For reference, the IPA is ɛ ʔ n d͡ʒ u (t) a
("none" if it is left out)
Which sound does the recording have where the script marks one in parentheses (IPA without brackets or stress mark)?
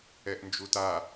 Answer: t